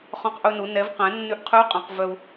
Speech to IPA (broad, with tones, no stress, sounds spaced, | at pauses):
χ ɔ̃˧ q ʔ ɵ˧ n u˩˧ n ɛ˩˧ v q ɛ̃˩˧ nː ʉ˧ ʔ qʰ ʉ˧˥ u̯ qʼ œ̃˩˧ q v œ˧ u̯